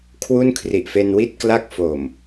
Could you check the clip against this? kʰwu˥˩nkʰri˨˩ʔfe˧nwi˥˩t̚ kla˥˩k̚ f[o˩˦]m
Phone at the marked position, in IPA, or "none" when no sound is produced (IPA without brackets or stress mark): o˨˩